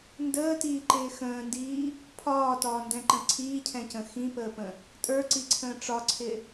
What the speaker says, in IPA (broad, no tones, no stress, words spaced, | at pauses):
ndəːtiːǃɪː xə̃ːndiː | pʰɒːtɒːndɛ̃ǃə̃ ǀʰiːcʰɛ̃cə̃ xĩpəːpə̃ | tʼə˞ǀiǀʰə̃ː ʈ͡ʂɒǀʰɪ